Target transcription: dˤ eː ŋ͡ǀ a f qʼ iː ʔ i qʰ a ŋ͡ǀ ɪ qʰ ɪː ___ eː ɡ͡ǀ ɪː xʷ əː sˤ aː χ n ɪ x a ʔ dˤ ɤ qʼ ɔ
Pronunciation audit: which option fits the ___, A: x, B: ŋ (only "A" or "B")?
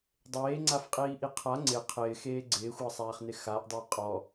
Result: A